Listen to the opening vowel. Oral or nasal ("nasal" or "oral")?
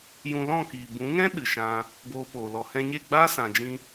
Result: nasal